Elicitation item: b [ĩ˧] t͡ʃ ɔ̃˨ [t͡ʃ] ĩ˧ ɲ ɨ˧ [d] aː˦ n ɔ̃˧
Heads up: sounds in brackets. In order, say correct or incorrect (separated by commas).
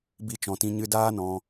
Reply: incorrect, incorrect, correct